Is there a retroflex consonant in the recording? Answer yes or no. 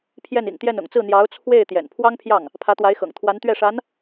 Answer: yes